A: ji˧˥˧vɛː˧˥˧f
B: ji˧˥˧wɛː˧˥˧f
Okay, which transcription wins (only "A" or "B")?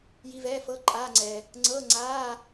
A